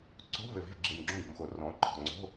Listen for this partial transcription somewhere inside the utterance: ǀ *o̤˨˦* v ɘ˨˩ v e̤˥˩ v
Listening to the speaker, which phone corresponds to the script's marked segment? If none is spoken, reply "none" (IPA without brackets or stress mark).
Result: o̤˧˥˧